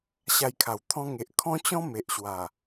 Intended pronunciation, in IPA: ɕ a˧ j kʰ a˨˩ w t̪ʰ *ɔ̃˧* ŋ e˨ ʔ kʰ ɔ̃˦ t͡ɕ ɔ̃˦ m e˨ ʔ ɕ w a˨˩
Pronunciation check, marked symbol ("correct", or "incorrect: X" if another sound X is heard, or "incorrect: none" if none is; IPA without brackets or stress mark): correct